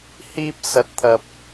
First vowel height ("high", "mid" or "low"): high